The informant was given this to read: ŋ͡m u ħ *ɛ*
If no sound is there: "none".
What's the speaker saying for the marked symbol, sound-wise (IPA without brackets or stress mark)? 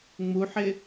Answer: ɪ